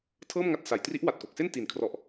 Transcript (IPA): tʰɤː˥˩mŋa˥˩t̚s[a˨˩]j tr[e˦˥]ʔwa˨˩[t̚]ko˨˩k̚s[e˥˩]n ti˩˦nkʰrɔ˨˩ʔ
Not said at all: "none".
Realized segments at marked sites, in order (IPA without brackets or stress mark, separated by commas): a˩˦, i˦˥, t̚, e˥˩